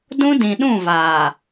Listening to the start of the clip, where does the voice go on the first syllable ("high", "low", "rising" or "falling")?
high